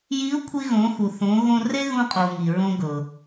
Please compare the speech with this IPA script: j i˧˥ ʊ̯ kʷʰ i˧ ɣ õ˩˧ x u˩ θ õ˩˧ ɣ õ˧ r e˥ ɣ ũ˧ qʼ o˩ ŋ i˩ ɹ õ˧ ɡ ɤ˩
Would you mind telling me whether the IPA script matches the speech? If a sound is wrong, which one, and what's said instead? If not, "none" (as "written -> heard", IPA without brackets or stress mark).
none